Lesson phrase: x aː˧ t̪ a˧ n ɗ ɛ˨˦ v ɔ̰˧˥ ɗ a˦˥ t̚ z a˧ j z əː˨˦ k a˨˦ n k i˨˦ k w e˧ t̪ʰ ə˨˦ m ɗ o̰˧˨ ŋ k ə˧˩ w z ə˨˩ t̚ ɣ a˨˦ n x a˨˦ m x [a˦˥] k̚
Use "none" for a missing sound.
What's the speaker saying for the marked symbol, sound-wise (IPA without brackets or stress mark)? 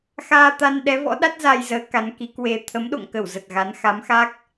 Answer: a˦˥